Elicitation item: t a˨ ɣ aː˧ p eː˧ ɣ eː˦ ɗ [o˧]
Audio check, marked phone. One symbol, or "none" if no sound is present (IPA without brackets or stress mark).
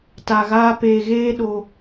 o˧